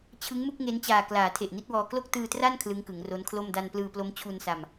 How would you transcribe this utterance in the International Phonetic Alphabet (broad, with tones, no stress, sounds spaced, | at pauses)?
t͡ɕʰ ɯ˦˥ ŋ m u˥˩ k̚ ŋ e˦˥ n t͡ɕ aː˨˩ k l aː˩˦ tʰ e˨˩ ʔ n i˦˥ t̚ w ɔː˧ k l o˥˩ k̚ t ɯː˧ t r a˥˩ n kʰ l ɯ˦˥ ŋ k ɯ˩˦ ŋ r o˦˥ n kʰ l o˥˩ m d a˧ n p l ɯː˧ p l o˦˥ m t͡ɕʰ u˧ n s a˧ m